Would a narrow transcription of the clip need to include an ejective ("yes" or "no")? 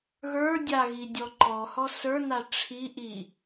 no